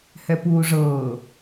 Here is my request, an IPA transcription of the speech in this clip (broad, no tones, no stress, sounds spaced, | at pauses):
h ɛ p uː ʐ ɤː